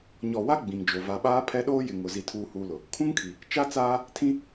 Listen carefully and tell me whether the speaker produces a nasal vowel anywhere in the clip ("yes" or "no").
yes